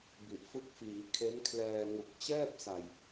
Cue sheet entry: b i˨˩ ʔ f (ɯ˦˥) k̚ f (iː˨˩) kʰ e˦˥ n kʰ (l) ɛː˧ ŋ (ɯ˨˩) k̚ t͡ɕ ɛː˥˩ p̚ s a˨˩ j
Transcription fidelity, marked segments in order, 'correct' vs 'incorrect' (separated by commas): correct, incorrect, correct, incorrect